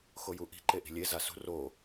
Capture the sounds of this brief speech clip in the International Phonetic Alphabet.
xojuʔi̤ ǃeʔi̤lʲe zasṳ ro

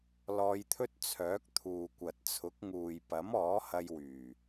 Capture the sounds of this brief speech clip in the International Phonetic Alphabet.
lɔː˧jt̪ʰɵ˥t̚ t͡sʰœː˨˥k̚ t̪ʰuː˨kʷɐ˨t̚t͡sʰʊ˨˥k̚ ŋuː˨jpɐ˨˥mɔː˨˥ hɐ˧jwyː˨˩

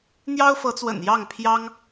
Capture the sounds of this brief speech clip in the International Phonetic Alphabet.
n̪jɑ˥ʊ̯fɤ˧˥t͡swə̰˨˩n jɑ˥˩ŋpʰjɑ˥ŋ

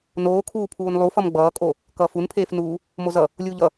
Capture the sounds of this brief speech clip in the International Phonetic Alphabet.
noːkʰuːpʰuːn lˠufʌm ɡ͡bʌːkʼo | kʌːfunpʰeːfnuː | mozʌ | lʲuːʎʌ

